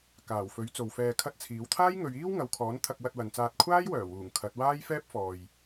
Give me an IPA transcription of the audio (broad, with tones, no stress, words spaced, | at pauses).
kaː˨˩wfɵ˨˥ɥ t͡so˨wfɛː˧kʰɐ˥t̚t͡sʰiː˨˥w t̪ʰaː˥jŋɵ˨˧ɥiː˥w ŋɐ˨˧wkʰɔː˨˥n t̪ʰɐ˧k̚wɐ˧t̚wɐ˨nt͡saː˧t̚ kʷʰaː˥jwœː˨˩wuː˨˩ŋ kʰɐ˨˥t̚ waː˥jfɛː˥p̚ fɔː˨j